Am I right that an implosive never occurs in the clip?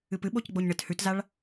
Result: no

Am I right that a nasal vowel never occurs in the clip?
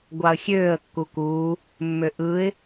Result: yes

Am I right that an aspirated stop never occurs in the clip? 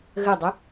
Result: yes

